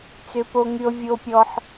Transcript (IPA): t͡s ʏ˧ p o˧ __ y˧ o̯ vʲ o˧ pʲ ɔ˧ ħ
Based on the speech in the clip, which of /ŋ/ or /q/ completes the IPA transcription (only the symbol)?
ŋ